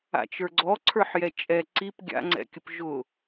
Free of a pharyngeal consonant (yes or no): no